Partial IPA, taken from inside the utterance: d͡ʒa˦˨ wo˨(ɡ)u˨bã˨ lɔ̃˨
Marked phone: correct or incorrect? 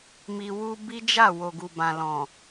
correct